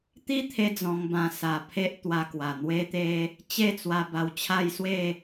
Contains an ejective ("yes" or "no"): no